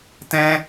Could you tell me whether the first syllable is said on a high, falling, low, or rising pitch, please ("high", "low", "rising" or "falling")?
high